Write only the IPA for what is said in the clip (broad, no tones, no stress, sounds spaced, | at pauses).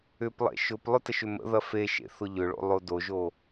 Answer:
ʏ p lˠ ḛ ʃ ʊ p lˠ ʊ t ə ʃ ʏ m ə̰ ð ɐ f e ʃ ḛ θ ʊ ʎ ʏ ɭ o̰ lˠ o d o ʒ o